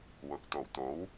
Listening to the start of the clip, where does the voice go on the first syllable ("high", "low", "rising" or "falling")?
low